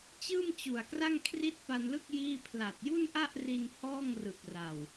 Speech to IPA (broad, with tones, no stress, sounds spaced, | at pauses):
t͡ɕ ɯː˥˩ m t͡ɕ u˨˩ a̯ k r a˥˩ ŋ kʰ r i˥˩ t̚ p a˧ n l ɯ˥˩ k̚ j iː˥˩ pʰ l a˨˩ t̚ j u˥˩ n ʔ a˥˩ ʔ r i˧ n h ɔː˥˩ ŋ r ɯ˨˩ k̚ r a˨˩ w